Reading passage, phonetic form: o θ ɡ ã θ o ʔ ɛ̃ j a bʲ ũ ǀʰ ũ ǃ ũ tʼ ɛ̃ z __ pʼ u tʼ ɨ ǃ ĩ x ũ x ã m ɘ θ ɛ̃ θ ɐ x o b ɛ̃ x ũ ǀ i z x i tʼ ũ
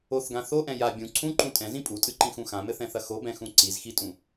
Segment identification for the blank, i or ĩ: ĩ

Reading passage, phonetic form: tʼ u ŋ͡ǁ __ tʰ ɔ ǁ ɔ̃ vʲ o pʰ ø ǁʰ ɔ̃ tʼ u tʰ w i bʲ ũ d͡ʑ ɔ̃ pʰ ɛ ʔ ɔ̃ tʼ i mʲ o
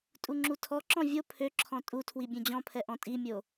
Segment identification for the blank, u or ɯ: u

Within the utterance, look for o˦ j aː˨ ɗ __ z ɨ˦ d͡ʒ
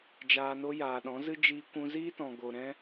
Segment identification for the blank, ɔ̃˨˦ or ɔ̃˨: ɔ̃˨˦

